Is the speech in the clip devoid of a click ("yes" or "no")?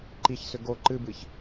no